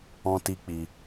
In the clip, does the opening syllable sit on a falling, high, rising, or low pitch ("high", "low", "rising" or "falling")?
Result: high